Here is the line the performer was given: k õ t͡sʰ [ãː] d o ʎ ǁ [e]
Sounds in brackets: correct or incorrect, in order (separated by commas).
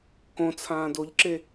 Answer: correct, correct